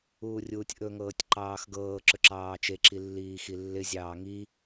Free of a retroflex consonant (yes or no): yes